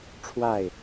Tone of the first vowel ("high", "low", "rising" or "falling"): falling